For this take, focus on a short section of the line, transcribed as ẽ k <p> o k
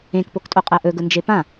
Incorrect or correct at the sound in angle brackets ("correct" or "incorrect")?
correct